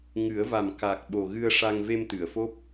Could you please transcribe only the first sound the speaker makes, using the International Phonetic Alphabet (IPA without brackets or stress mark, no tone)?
ŋ